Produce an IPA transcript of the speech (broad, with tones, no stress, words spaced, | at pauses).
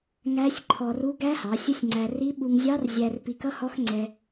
ŋæ˦˥sʲ ǃʰɔ˧ru˦˥ ɡæ˦˥hɑ˩˧ sʲə˦˥sʲŋ͡ǀæ˧ ri˦˥ ɓu˧ŋzʲɑ˦˥rzʲæ˧r pi˧kʌ˦˥hɔ˦˥xŋ͡ǀɛ˧